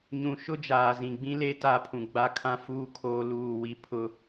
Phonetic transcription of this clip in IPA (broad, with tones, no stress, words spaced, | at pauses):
ɲũ˨ʃʊ˦ d͡ʒaː˨zĩ˨ ɡ͡bĩ˦le˦ ta˦˨pʰũ˨ ɡ͡ba˦kʰã˦fuː˦ kʰoː˦luː˦˨wi˦ pʰʊ˦